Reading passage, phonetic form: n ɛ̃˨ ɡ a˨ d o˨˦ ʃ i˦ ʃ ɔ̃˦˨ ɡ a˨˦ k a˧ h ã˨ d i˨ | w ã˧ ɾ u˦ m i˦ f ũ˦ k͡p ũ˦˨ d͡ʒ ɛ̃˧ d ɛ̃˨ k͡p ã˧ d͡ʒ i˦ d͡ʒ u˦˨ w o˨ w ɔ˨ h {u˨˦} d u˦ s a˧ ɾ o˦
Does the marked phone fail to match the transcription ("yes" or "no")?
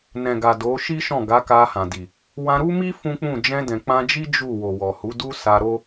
no